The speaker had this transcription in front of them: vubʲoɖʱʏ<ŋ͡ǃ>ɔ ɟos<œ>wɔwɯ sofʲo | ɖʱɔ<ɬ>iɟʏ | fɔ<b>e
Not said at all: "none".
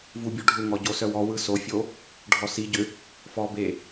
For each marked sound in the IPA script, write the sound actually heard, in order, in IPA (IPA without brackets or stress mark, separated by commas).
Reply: ŋ, œ, s, b